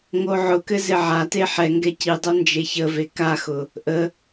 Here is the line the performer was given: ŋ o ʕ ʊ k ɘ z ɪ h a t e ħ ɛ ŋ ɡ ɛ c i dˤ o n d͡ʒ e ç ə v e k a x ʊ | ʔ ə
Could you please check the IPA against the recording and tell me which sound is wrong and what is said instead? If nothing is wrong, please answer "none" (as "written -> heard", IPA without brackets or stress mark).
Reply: h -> ʕ